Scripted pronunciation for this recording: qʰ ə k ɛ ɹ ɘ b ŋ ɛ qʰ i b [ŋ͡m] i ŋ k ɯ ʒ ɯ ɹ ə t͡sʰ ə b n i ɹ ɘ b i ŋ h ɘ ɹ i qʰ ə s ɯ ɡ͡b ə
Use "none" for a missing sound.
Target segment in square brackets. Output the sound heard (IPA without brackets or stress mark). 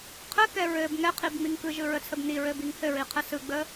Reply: ŋ͡m